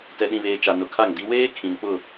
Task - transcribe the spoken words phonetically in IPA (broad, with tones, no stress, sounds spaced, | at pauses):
t ɛ˨ ɗ ĩ˨ β eː˨ t͡ʃ a˨ n ʊ˨ kʰ a˦˨ ŋ d i˦ w eː˦ kʰ ĩ˨ n k͡p ʊ˦˨